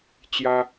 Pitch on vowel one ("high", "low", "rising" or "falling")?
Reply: high